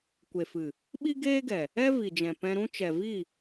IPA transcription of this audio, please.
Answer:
kʷ e˨ f ɨ˨ | ɓ i˦ ɡ eː˦ ɡ ɛ˨ | ɛ˦ v i˨ d͡ʒ ɛ̃˨ p ɛ̃˧ ɾ ũ˦ t͡ʃ ɛ˨ v i˦˨

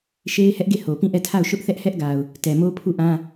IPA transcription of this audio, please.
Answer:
ʃ e˦ ɪ̯ h ɛ˦ ʔ ɡ e˦˨ h o˨ p ĩ˦˨ ʔ ɛ˦˨ tʰ a˦˨ ʊ̯ ʃ ʊ˦ ʔ θ ɛ˦ ʔ h ɛ˦ ʔ ɡ a˨ ʊ̯ | t ɛ˨ m o˦ pʰ u˦˨ ʔ ã˦

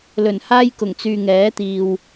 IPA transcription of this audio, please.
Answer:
l ɵ˨˩ n h aː˥ j k ʊ˨˩ ŋ t͡s yː˨ ŋ ɛː˨˥ t̪ iː˨ w

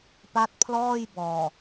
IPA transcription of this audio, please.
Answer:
p a˦˥ t̚ pʰ l ɔː˥˩ j b ɔː˨˩

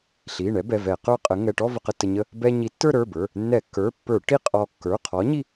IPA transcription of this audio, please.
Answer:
ɬ i˩˧˩ ɳ ɛ˨˥ b ɛ˩˧˩ v ɛ˧˩˧ q ə˞˥˧ qʼ ə˨˥ ŋ ɛ˩˧˩ ʈ ɔ˥˧ v ə˧ q ə˧ tː ə˧ ɲ ə˥˧ | b ɛ˧ ɲ i˨˥ tː ə˞˥˧ ɾ ə˞˩˧˩ b ə˞˩˧˩ | nː ɛ˧˩˧ kː ə˞˩˧˩ pː ə˞˧˩˧ ʈ i˥˧ qʼ ɔ˧ kː ə˞˩˧˩ qʰ ɔ˨˥ ɲ i˥˧

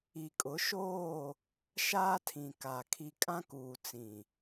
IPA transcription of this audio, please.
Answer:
i˨ kʼ ʊ˨˦ ʃ oː˦˨ | ʃ aː˦ tʰ ĩ˨ k a˨ kʰ i˨ kʼ ã˦ k uː˨ t͡s ĩ˨

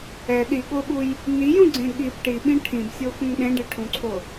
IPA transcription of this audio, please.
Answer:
ɛ ɗ i ɠ o ɓ u j | n i j ũ ɡ͡ǀ ẽ ɠ i b ʈ i ɓ ĩ ʈʰ ĩ b sʲ o x ũ ŋ ɗ ẽ ɖ e ʈʰ ũ ǀʰ o

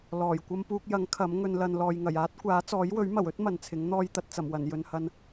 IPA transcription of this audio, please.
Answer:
l ɔː˨˩ j kʷ ɐ˧ m p uː˧ k̚ j ɐ˨˥ ŋ kʰ ɐ˨˥ m ŋ ɵ˧ n l ɐ˧ n l ɔː˨ j ŋ ɐ˨˩ j aː˥ t̚ kʷ aː˨˥ t͡s ɔː˨˥ j w ɵ˨˥ ɥ m ɐ˨˩ w ɵ˥ t̚ m ɐ˨ n t͡sʰ ɪ˨˥ ŋ n̪ ɔː˧ j t̪ ɐ˨ t̚ t͡s ɐ˨˩ m w ɐ˨˩ n j ɵ˨ n h ɐ˧ n

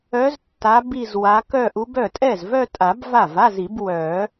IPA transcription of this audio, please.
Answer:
œ˧˥ z tː a˧˥ b i˥˧ z w a˧˥ k œ˥˧ ʔ u˧˥ b œ˥˩ tʼ ɛ˥˩ z v œ˥˧ tʼ a˨˩˦ b v a˥˩ v a˧˥˧ z i˨˩˦ b w œ˨˩˦

